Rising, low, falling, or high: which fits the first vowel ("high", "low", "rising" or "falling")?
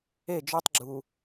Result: falling